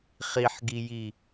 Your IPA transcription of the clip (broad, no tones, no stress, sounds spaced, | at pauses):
χ i ħ ɡ i j i